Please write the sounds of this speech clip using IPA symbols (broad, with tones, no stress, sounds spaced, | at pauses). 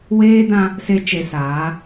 w eː˦ d ã˦ | s e˦ t͡ʃ e˨ s aː˨˦